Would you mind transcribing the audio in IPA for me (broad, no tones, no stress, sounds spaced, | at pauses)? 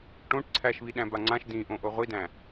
ʈ õ ʈ ǀʰ æ ʃ β i ɗ æ̃ b a ŋ͡ǀ ã ʃ d ĩ ʔ õ ʔ o ʁʷ i d æ̃